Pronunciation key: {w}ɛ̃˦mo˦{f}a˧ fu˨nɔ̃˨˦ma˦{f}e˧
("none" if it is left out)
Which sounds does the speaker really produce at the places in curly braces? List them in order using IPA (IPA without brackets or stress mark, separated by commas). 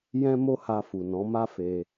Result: j, h, f